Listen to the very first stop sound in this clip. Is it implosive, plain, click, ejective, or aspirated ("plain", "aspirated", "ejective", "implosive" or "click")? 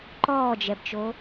click